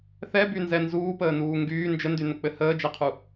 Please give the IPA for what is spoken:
θ ɛ b y n z ɛ n z uː p əː n uː ŋ ɡ yː n d͡ʒ ə n d y n ə k͡p ɘ h əː d͡ʒ ɛ qʰ u

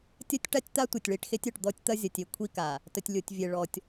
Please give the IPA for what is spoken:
tʲ ɐ˦ tʲ ʈ a˦ tʲ t̪ a˦ tʷ e˨ tʲ ɭ i˨ ʈ x e˦ tʲ œ˨ ʈ d̪ ɔ˦ tʲ t̪ ɐ˦ zʲ ɐ˨ tʲ e˨ kʷʰ i˦ k a˨ | t ə˨ tʲ lʲ o˨ tʲ vʲ e˨ ɭ ɔ˨ tʲ

